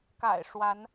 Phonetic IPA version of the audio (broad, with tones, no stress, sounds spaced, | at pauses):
k a̰˨˩ ɪ̯ ʂ w a˨˦ n